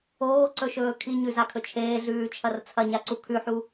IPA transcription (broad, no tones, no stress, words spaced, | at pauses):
oːǀɵʃɵː kʰiɲʉzakʰɵ t͡ʃʰeːɮʉːt͡ʃʰɐr t͡sʰɐɲaǀu kʰʉħu